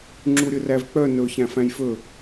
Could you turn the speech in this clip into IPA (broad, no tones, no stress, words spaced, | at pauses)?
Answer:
ŋ͡ǁuɾʲɵrævk͡pœ nɵ çæ̃fæ̃jfɵ